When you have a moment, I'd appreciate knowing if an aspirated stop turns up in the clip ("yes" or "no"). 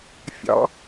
no